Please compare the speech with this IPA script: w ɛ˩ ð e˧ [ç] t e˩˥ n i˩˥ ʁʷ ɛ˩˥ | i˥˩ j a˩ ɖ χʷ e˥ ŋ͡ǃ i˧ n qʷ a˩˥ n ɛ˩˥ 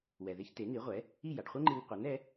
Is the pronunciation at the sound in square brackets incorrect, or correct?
correct